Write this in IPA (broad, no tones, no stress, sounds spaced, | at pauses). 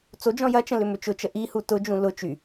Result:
t͡s o d͡ʒ ɔ̃ j ɐ t͡ʃ ə̃ l ʏ m ʏ t͡ʃ ʊ t͡ʃ ə ʔ i h u t ʊ d͡ʒ ũ l ʊ t͡ʃ y